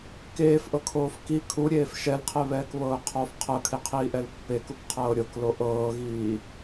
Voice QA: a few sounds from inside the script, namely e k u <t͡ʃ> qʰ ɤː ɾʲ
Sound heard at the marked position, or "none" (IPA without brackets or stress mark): k